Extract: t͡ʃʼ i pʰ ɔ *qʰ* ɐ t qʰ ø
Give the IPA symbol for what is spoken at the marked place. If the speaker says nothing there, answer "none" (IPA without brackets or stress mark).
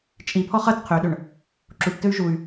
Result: χ